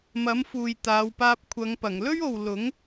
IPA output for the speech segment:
m ɐ˨˥ m f uː˨ j t̪ aː˨˧ w p aː˧ p̚ kʷʰ ɐ˨˧ ŋ p ɐ˨˩ ŋ l ɵ˥ ɥ o˨ w l ʊ˨˥ ŋ

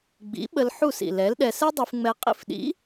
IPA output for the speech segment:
ɡ͡b ḭ˨˥ ɓ ə˧ l ħ u˥˨ s ḭ˨˩ l ɛ˨˥ l ɗ ɛ˧ s ɛ˥ dˤ y˧ f ŋ͡m ɛ˧ qʼ ḭ˧ f ɗ ḭ˨˥

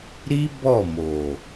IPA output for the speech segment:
ɾ i˦ b ɔ˦˨ m o˨

